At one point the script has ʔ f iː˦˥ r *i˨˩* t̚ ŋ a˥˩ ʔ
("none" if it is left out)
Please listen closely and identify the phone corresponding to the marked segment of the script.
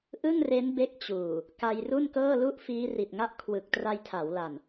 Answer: i˨˩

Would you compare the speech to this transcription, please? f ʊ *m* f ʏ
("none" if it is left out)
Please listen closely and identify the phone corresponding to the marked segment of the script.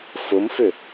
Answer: m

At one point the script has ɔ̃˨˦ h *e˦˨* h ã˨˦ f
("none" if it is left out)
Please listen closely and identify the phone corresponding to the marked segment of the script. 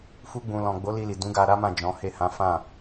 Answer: e˦˨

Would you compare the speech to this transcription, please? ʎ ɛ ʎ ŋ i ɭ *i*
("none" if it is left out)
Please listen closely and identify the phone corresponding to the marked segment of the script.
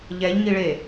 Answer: e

